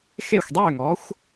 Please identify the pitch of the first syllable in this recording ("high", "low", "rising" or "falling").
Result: falling